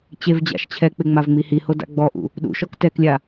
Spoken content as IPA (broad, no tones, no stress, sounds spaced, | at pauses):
t͡ɕ e v d͡ʑ a̰ ʃ t͡ɕʰ ɛ k͡p ɪ ŋ͡m a v ŋ͡m i h i h o d a̰ ɡ͡b ɔ ʔ ṵ | ɗ ṵ ʃ ɔ k t ɛ k lʲ a